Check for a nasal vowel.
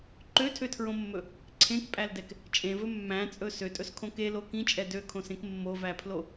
present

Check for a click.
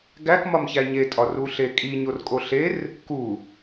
absent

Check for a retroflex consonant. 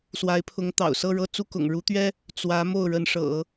present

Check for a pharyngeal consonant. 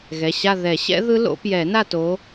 absent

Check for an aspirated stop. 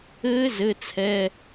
present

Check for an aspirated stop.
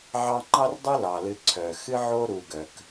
present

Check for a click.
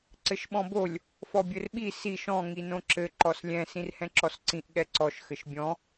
present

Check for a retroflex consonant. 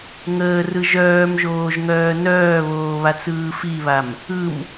absent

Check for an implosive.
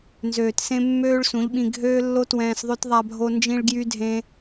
present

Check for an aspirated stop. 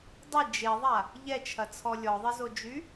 present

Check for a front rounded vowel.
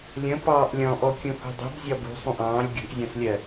absent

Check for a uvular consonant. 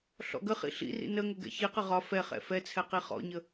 present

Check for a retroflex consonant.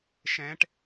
present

